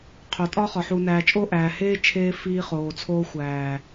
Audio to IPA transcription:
qʰo˨tʼɒ˦ χɒ˨ ħuː˨næː˨t͡ʃʼo˦ ʔæː˨heː˦ t͡ʃʰeː˦fiː˦χoː˨t͡sʰoː˦ xʷæː˨

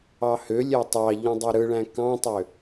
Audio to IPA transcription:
ɑhølʲæ tˤɑʎũ dˤiɾɯɭæ̃ kɑ̃tˤø

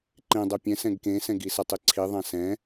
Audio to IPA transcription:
ǃẽ dˤɛpʲɛ̃ sɛ̃ɡkẽsɛ̃ ɡisʌtˤ iǀʰiðˤã sɛ̃

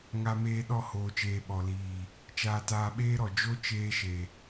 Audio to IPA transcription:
ŋa˧meː˧ ɗɔ˦˨hoː˨t͡ʃeː˨ ɓɔ˨liː˨ | t͡ʃaː˧taː˧ɓeː˦ɾɔ˨ d͡ʒo˦t͡ʃeː˧ ʃe˨

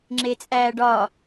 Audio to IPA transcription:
ŋ͡ǁet͡sʼæːɖɒ

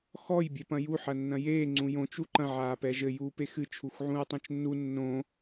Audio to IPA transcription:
xɔj bʲɛpɐ̃ju ħɐnːɐ̃jeː ŋ͡ǀũjõt͡ʃ uǃɐ̃ ʕaːpɛʒɘ juːpexɨ t͡ʃʰuxʕũɹtˤõt͡ʃnːu nːõ

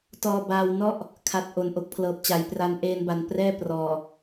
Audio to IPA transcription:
tɔː˧baː˧wnɔ˥˩ʔ | kʰa˨˩t̚ ʔo˨˩nʔo˨˩k̚pʰlɤː˨˩p̚t͡ɕa˩˦j pra˧nʔeː˧nba˨˩n prɛː˥˩prɔː˨˩

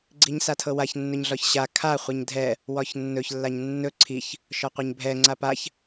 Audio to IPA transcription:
ɡ͡ǀiɲsatʰɤwaç nːɵɲɮɒçɕa kʰa χʷɛɲdʱɛ | wɒçnːɵç lːaɲnːɵ ǀʰiç | ʃɒqʷɛɲbʱɛ ŋ͡ǀapaç

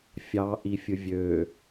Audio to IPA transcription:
fʲɑʔifʲɯ vʲø

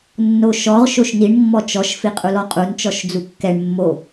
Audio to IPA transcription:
nːoʃɔʁ ʃoʃniɳ mːɔt͡ʃɔʃ fiqʼulɔqʼun t͡ʃɔʃd͡zukːɛɳ mːo

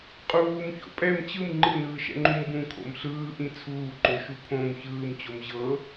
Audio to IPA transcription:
qʼuːmço̰ pʼɛm t͡ɕɯm ŋ͡ǃɯnɯːʃɛ̰ŋ͡ǃũm bũkʰo̰m ɬɯːʔĩ t͡sʰuːǃoʃu pʰõm çɯːmt͡ɕom ʑɤ

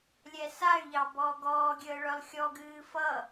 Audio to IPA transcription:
lʲɛsay̯ʎɑ bɔːɡɔːɡʲəː ɭœlˠxʲɔɡɨː fʌ

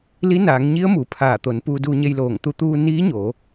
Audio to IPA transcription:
li˧˥naː˩˧ŋɲi˧˥ə̯ mu˩˧pʰaː˧˩t̪o˩˧n puː˧duː˧ɲe˧jloː˧˩ŋ t̪u˧t̪uː˧ niː˧˥ɲoː˩˧

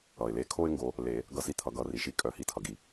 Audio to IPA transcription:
ʌ˩ɪ̯le˨˦kʰo˦ɪ̯ ŋɡo˨˦ | le˨˩˦ | ɡʌ˦si˦t̪ʰʌ˨˩˦ɡʌ˨˩˦ ri˩ʃi˦ kʼœ˨˩˦hi˨˦tʰʌ˩ɡi˩

